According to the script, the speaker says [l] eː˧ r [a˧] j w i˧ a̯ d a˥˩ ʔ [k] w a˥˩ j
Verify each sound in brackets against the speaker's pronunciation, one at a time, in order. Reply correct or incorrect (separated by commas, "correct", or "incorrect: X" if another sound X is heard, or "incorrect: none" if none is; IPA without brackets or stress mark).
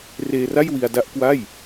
incorrect: r, incorrect: a˥˩, correct